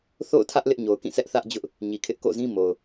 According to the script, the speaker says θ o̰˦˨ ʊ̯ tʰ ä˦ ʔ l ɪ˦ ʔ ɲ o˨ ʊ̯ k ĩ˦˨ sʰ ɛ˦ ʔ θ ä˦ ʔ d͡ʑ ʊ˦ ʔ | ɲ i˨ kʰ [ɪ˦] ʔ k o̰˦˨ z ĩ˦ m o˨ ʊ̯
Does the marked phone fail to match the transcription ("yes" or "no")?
no